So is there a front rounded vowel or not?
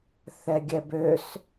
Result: yes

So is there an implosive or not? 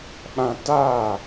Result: yes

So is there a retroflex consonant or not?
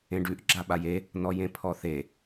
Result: yes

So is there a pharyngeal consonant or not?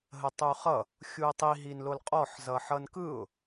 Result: yes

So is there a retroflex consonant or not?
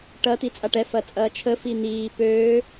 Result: yes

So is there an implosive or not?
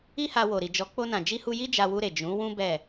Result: no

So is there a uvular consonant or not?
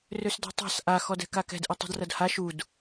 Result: no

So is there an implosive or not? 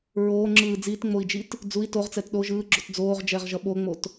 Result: yes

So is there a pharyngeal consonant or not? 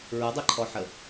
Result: yes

